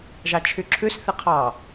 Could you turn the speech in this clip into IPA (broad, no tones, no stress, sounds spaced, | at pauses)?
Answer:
ʒ ɑ t͡ʃʰ y ǁʰ ʉ s θ i qʰ ɑ